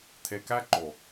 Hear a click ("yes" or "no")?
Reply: yes